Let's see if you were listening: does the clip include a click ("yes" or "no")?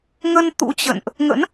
no